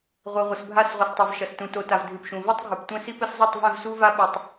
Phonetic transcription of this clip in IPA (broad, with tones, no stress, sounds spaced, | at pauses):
ʁʷ e˨ ʁʷ ɘ˨ s bʱ a˦˨ s ʁʷ ɨ˨ s tˤ ɛ˨ v ʃ ɐ˨ s t ũ˨ t o˨ t a˨ v dʱ ɨ˨ p ʃ ũ˨ v ɛ˦ tˤ ɡʱ ɨ˨ p tʷ ɛ̃˦ s i˦ p ɘ˦ s zˤ u˦˨ tˤ v ɛ̃˦˨ v s u˦ v a˦ ɓ ɛ˦ tˤ